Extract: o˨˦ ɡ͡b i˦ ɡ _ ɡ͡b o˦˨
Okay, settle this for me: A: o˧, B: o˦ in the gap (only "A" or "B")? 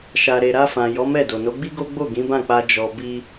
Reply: B